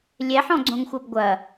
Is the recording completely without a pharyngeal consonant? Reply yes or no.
no